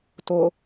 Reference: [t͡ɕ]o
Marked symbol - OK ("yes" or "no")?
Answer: no